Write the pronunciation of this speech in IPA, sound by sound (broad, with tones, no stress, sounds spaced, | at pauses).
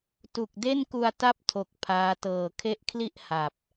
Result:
t u˨˩ k̚ d e˥˩ n k u˧ a̯ t a˥˩ p̚ tʰ o˨˩ k̚ pʰ aː˦˥ t ɤː˨˩ kʰ e˦˥ ʔ kʰ l i˥˩ ʔ h a˨˩ p̚